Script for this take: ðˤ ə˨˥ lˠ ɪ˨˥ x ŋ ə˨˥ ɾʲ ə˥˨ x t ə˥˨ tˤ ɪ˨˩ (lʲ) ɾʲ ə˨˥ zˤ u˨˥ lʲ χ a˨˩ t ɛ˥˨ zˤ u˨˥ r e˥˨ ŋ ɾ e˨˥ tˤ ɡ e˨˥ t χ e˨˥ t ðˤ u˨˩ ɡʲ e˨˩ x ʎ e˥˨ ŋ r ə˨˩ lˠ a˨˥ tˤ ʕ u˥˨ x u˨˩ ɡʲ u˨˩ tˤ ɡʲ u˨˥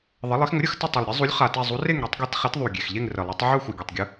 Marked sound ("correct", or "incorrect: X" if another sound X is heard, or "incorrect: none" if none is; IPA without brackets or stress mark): incorrect: lˠ